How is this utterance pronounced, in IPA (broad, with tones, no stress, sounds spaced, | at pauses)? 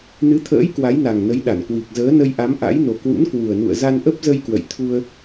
n ɨ˨˦ t̪ʰ ə̰ː˧˥ j k w a˨˦ j n a˨˩ ŋ n ə˨˦ j ɗ a˧˩ n k w i˨˩ k̚ z əː˨˦ n ə˧ j ʔ a˨˦ m ʔ a̰˧˥ j n o˨˩ k w ṵ˧˥ n k w u˨˩ ə̯ n ṵ˧˨ ə̯ z a˧ n ʔ ə˦˥ p̚ z ə˧ j k w ə̰˧˨ j t̪ʰ u˧ ə̯